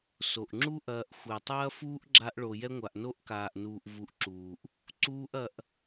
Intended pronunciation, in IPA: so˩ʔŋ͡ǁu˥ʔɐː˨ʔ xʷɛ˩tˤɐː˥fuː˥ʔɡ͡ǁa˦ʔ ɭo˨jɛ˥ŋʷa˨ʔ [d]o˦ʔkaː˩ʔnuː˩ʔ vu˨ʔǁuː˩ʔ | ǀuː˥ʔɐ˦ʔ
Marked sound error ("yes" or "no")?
yes